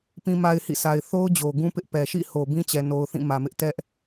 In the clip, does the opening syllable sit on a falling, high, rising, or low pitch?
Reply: high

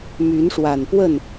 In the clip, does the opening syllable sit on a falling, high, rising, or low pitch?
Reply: rising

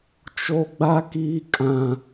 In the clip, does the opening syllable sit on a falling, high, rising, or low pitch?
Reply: high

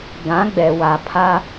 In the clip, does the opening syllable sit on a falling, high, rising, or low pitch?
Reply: rising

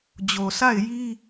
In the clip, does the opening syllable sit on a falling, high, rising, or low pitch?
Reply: low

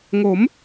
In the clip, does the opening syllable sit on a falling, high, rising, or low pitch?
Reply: rising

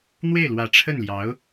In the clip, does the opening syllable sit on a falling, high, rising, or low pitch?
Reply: falling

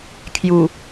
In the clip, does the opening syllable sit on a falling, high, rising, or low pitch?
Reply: low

